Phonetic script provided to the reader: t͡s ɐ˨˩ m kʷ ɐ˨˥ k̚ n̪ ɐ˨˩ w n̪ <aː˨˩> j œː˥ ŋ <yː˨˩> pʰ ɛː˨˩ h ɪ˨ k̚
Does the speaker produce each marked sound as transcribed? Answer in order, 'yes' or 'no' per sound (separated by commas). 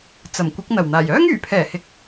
yes, yes